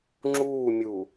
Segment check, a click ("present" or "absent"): present